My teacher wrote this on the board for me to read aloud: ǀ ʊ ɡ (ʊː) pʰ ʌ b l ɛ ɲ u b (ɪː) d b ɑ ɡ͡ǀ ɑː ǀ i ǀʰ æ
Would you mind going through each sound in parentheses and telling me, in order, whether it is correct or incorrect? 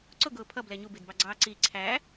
correct, correct

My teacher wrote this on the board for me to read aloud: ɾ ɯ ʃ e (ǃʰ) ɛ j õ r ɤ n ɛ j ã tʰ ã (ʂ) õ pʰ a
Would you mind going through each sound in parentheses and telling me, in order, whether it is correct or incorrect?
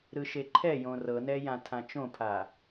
correct, incorrect: t͡ʃ

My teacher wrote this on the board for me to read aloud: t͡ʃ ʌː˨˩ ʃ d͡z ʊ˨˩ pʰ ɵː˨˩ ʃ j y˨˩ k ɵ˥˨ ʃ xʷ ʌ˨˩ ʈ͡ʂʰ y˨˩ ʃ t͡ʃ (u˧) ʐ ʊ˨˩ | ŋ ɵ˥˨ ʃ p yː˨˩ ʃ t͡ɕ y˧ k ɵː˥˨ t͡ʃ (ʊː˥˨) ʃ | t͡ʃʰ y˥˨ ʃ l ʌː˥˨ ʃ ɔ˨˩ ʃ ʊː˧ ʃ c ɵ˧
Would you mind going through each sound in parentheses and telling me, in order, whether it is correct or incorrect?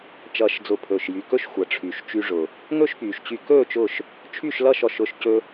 incorrect: y˧, correct

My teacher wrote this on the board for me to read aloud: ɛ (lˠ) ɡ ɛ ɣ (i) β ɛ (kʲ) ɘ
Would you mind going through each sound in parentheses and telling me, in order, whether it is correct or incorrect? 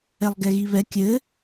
correct, correct, correct

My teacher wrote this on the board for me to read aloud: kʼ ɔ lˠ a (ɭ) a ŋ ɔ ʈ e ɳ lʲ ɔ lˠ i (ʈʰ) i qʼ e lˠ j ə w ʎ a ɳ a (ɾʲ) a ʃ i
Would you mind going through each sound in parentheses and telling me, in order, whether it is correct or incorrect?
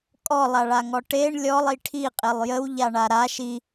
correct, correct, incorrect: ɾ

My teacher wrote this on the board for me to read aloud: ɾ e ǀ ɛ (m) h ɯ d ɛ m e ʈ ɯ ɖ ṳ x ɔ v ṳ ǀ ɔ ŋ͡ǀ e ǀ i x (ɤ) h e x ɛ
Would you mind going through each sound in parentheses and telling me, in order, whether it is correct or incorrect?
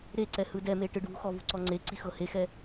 incorrect: none, correct

